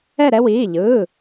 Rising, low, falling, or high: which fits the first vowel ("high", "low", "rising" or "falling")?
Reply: falling